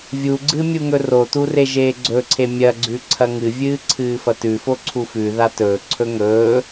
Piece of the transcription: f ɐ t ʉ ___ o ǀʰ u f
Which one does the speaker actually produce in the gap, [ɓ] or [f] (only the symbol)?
f